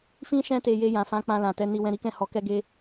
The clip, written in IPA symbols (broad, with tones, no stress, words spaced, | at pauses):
fĩ˦ ʃɛ̃˦te˧ je˧jã˨fã˨˦ k͡pã˧lã˨tɛ˧ni˧ wɛ̃˧ɾi˦kɛ̃˦˨ hɔ˧kɛ˦ ɡe˦